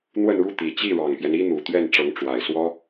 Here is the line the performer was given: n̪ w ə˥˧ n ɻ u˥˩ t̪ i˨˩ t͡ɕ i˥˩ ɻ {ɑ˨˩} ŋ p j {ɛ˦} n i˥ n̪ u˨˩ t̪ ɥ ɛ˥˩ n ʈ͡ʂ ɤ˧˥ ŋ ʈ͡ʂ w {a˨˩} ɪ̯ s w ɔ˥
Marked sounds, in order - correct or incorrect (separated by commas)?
correct, correct, correct